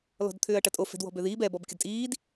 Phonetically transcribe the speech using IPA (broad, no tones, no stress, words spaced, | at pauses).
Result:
lɔ̤dt̪ʰʏːɐ̯ʈɐtʼo fɛ̤dwɔ̤bøðiːb ɛbɔb kʲədtʼiːd